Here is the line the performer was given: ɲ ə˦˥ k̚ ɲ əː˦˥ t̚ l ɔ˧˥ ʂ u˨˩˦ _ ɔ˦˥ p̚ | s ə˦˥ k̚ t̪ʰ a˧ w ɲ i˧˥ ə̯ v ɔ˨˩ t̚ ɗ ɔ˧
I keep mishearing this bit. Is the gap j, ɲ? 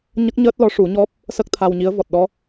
ɲ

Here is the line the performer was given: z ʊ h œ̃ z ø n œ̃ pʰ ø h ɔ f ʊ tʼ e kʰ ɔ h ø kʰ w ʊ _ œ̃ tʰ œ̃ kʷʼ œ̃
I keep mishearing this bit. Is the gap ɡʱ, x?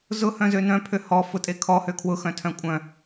x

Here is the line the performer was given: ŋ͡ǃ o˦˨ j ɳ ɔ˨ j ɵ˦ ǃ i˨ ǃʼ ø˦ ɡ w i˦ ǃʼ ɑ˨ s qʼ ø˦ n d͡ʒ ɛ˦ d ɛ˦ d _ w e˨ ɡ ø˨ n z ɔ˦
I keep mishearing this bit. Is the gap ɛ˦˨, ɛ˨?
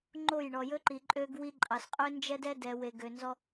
ɛ˨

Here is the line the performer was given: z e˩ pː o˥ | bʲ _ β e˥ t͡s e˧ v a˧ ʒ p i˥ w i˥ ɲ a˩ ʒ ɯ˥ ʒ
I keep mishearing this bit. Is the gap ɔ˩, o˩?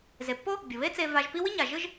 o˩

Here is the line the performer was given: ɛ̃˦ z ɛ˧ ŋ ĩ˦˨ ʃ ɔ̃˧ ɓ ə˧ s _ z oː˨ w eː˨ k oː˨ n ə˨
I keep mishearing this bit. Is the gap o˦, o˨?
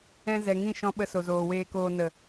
o˨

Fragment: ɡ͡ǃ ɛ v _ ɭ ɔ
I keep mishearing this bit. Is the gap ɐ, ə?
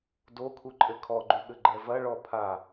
ɐ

